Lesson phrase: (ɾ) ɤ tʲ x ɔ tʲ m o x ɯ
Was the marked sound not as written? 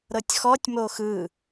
no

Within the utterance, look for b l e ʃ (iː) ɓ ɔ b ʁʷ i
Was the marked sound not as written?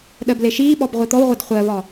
no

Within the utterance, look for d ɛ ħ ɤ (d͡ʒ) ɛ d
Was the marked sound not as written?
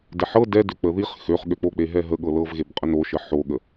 yes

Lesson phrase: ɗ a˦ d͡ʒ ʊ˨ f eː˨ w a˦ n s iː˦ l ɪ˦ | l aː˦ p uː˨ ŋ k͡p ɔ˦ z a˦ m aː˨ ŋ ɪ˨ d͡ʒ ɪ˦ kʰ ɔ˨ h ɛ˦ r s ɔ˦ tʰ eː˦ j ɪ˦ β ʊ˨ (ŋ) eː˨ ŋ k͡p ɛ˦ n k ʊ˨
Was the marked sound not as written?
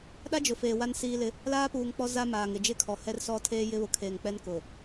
yes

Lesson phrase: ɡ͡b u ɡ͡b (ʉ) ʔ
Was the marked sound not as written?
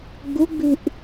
no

